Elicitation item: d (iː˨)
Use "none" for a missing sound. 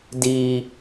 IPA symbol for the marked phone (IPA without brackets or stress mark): iː˨